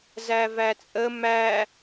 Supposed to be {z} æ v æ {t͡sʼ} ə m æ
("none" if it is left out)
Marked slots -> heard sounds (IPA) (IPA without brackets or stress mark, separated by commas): z, t͡sʼ